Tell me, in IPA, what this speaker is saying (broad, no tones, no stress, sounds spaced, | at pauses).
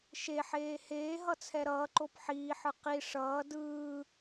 ʃ e ħ eː h eː ɦ ʌ t͡sʰ ɛ ɾ ʌː ǃ o p ħ iː ħ ɯ q i ʂ ʌː d ɯː